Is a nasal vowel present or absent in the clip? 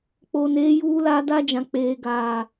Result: present